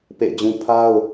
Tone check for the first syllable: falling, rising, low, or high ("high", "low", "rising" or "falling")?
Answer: falling